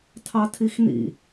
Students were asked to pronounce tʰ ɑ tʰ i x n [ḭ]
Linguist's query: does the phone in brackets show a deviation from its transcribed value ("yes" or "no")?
no